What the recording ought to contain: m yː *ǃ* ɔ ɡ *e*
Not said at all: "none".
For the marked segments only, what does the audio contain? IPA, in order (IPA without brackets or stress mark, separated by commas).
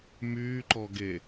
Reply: ǃ, e